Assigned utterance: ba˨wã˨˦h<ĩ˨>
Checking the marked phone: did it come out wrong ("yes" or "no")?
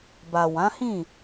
yes